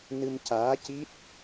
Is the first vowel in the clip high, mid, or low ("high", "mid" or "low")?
high